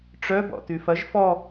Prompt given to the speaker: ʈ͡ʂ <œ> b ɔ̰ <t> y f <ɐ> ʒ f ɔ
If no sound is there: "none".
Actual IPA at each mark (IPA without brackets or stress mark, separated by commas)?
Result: œ, t, ɐ